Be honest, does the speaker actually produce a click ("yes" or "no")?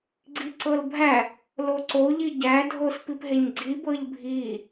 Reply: yes